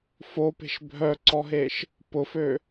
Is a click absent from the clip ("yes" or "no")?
no